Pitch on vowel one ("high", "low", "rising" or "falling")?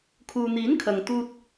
low